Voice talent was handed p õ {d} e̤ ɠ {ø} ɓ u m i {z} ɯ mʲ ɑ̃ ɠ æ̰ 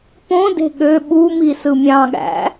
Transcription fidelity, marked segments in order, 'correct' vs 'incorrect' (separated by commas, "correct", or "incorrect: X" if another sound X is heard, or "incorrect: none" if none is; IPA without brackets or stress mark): correct, correct, incorrect: s